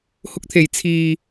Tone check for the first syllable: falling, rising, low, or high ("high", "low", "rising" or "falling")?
high